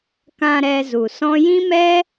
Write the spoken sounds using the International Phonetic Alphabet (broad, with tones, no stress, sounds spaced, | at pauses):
k ã˧ ɾ ɛ˧ z u˨ s ɔ̃˦ j ĩ˦ m ɛ˦